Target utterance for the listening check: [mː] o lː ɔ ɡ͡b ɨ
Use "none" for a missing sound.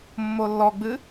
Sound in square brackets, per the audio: mː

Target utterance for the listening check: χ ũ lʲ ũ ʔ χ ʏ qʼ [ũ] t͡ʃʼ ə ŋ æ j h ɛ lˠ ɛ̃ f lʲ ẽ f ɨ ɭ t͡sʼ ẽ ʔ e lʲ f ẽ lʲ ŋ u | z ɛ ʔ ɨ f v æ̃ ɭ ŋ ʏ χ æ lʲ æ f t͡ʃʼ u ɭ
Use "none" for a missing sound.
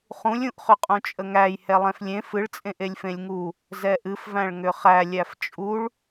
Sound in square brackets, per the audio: ũ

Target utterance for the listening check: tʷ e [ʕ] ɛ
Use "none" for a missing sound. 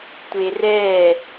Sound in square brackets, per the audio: r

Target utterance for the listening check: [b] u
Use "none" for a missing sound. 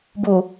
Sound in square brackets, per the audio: b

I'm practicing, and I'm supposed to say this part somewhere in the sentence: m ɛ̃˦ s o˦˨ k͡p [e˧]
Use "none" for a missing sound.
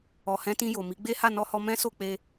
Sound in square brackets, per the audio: e˧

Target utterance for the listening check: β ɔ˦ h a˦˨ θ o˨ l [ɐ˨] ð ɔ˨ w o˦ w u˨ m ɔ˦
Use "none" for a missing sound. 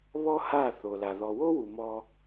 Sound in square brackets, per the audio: a˨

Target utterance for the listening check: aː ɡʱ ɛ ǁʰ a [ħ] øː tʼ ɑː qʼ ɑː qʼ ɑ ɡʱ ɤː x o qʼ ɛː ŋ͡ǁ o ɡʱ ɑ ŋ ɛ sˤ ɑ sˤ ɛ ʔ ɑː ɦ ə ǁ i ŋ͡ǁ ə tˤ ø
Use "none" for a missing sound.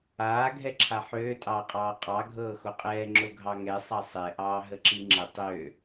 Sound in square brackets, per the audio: ħ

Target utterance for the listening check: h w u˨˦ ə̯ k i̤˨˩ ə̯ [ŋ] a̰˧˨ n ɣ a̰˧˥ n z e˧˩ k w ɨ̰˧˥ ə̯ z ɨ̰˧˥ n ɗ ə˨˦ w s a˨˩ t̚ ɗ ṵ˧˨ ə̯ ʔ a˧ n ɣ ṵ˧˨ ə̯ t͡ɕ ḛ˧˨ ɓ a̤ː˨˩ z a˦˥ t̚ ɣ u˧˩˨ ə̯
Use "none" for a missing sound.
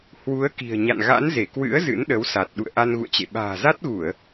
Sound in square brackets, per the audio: ɲ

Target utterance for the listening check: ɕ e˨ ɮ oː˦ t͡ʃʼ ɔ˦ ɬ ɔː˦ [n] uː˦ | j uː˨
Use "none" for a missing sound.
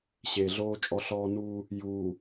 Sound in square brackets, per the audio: n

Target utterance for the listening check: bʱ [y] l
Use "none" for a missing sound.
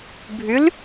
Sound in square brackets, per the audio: y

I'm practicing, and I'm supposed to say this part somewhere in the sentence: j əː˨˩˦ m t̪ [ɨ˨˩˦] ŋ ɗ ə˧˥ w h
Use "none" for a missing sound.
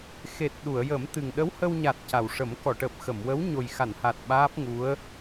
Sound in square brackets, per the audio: ɨ˨˩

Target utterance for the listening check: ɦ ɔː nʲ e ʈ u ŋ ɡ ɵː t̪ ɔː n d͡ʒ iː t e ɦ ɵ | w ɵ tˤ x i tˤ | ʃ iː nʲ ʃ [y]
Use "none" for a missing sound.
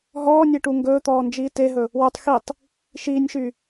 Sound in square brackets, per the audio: y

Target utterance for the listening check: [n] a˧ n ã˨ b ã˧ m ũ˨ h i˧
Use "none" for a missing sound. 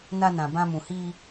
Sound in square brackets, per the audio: n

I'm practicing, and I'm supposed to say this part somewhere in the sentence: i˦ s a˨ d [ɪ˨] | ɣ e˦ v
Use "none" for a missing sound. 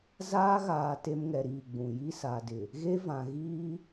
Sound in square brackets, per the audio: ɪ˨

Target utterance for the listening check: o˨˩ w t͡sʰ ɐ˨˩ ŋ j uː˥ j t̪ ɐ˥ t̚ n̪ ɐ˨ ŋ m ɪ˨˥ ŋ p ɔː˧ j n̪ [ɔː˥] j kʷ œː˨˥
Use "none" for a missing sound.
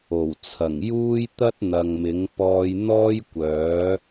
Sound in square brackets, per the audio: ɔː˥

